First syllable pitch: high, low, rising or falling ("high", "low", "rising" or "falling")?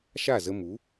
falling